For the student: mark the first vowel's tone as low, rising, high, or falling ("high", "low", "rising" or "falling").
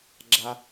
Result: low